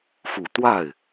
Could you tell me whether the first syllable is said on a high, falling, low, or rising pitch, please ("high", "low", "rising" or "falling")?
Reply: low